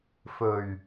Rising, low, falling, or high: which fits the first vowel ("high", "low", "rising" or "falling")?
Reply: low